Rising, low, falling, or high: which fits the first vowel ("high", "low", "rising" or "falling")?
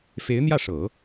rising